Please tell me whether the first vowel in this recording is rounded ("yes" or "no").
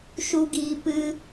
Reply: yes